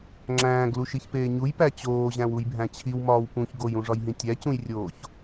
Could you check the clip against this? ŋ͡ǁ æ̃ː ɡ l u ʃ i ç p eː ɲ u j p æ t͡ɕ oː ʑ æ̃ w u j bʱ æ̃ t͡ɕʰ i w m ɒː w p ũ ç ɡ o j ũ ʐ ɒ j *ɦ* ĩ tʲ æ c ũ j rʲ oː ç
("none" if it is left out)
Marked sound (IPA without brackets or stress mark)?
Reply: ɦ